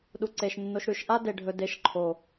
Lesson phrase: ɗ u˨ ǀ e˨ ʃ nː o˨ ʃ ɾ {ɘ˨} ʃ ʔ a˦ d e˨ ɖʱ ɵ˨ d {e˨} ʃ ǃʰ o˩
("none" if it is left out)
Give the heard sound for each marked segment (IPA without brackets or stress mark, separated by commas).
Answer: ʉ˨, e˨